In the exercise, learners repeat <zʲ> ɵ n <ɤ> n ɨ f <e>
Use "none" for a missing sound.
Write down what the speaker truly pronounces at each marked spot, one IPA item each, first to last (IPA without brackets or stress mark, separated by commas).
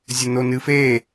zʲ, o, e